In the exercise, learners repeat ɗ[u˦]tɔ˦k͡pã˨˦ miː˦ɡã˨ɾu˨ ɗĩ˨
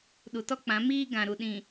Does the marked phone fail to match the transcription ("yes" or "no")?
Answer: yes